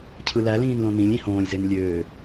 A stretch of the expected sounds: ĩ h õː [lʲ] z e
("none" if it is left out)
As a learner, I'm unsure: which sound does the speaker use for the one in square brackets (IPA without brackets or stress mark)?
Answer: lʲ